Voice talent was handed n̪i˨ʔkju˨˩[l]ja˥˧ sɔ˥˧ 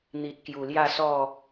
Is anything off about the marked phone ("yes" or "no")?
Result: no